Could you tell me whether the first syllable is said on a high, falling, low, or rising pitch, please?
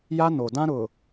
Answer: high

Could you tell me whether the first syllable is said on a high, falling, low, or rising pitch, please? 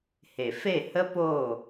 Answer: low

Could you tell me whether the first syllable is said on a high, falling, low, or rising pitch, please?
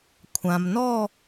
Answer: low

